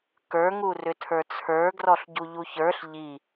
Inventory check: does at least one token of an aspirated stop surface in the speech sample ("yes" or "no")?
yes